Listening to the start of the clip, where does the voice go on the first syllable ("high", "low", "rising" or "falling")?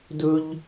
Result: high